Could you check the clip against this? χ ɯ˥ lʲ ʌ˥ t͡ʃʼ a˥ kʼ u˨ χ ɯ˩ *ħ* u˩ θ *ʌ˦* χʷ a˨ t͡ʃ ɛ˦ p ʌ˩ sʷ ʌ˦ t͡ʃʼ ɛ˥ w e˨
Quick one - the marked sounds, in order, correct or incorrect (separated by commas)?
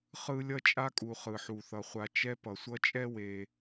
correct, incorrect